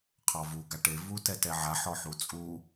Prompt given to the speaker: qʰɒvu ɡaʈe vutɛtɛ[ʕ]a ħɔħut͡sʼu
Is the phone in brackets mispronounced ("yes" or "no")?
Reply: no